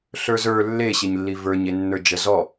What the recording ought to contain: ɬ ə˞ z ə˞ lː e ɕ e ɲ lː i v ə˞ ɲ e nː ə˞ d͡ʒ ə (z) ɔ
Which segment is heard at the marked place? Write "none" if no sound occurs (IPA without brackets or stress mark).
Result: z